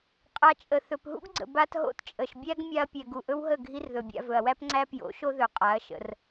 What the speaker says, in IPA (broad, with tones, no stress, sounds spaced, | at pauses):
qʼ a˧ t͡ʃʼ ə˨ θ ɵ˨ p ɦ ṵ˦ ɡ ɡ͡ǀ ə̰˨ b a˧ t ɦ o̰˦ t t͡ʃʼ ə˨ ʃ bʲ æ˦ ɡ mʲ a˧ ɐ̯ pʲ ɛ˨ ɡ u˨ ʔ ɵ˦ w ɦ ə˦˨ ɡʱ i˦ r ð ɵ˨ bʲ a̰˧ v ɵ˨ ɐ̯ w æ˦ p ŋ͡ǀ æ˦ p j o̰˨˦ ʃ o˦ ð ɵ˨ qʼ a˨˦ ɐ̯ ʃ ə̰˧ r